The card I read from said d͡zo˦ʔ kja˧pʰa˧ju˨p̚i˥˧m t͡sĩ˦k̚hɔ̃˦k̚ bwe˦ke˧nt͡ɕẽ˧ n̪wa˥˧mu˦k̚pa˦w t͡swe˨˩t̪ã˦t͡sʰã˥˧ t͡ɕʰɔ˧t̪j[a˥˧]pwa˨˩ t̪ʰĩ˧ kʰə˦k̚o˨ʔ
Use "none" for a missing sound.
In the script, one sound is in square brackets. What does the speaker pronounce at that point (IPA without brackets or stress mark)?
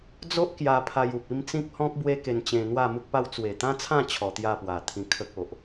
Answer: a˥˧